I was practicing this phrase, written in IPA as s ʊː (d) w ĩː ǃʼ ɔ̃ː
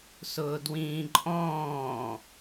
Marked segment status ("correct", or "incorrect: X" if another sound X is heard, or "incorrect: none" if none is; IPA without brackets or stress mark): correct